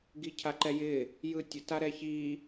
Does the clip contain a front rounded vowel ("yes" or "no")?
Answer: no